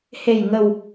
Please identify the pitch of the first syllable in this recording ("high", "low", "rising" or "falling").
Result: low